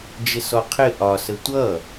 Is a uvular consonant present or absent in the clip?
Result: present